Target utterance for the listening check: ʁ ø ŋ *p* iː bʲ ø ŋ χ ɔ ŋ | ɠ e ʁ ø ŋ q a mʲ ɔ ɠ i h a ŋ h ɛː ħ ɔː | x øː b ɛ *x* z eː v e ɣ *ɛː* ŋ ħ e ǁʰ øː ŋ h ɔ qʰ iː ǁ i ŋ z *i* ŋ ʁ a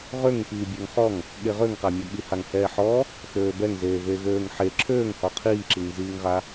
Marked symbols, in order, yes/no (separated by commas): yes, no, no, no